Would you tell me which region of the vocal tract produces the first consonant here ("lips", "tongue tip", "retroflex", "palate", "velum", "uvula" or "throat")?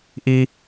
throat